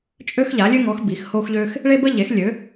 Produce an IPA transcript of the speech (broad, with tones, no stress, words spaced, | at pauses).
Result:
t͡ʃʼø˥xʎa˨˥lʲø˥ŋɔ˨˥x bi˨˥xho˥xʎø˥x | ɭe˥bə˥ʎe˨˥x lʲø˨˥